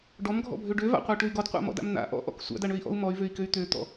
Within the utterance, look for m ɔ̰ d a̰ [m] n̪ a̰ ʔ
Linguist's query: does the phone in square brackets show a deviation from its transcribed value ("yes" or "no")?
no